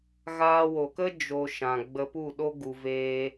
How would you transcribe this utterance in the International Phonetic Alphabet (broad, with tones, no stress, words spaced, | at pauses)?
ɣaː˧wo˨kə˦ d͡ʒo˦ʃã˧ ɡ͡bə˧pu˦˨ɗo˦ ɡu˧veː˦